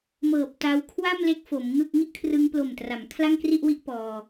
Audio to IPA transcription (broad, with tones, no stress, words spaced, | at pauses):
mɤː˨˩p̚ta˧w kʰwa˥˩mle˦˥k̚ fo˩˦mŋɯ˥˩k̚ ŋi˥˩ʔkʰrɯ˧ŋplo˨˩mtra˩˦m kʰla˥˩ŋkri˥˩ʔwi˥˩ʔ pɔː˧